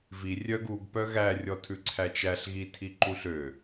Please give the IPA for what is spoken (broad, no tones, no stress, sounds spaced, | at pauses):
v i rʲ œ ɡ u ɡ p œ ɣ æ rʲ ɔ tʰ ʉ ǀʰ æ t͡ʃ æ ɬ ɣ i tʰ i ǃ u ɬ ø